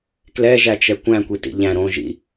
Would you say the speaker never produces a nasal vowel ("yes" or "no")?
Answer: no